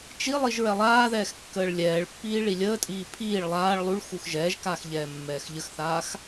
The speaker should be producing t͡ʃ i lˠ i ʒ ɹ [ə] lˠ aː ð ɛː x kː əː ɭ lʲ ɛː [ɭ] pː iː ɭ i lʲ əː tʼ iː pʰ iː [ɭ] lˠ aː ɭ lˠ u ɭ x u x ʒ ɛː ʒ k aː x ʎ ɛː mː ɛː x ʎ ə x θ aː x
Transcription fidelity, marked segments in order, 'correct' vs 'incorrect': incorrect: ɛ, correct, correct

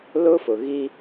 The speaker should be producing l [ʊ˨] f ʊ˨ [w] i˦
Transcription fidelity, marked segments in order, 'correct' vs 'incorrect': incorrect: ʊ˦, incorrect: ɣ

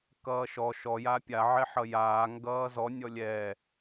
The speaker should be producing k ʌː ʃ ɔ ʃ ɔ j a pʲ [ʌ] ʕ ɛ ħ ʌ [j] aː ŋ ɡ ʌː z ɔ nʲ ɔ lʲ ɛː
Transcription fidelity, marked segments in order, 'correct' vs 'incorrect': incorrect: a, correct

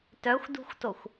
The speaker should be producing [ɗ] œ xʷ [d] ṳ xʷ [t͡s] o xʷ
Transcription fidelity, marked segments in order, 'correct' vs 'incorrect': incorrect: t, correct, incorrect: t

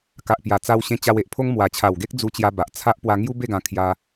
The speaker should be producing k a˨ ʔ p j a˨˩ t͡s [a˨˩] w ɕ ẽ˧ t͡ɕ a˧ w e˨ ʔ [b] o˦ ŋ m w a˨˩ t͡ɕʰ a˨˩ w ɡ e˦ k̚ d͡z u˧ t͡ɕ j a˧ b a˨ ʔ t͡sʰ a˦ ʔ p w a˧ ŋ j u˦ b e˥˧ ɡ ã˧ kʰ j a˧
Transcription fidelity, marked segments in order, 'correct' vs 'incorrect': incorrect: a˧, incorrect: pʰ

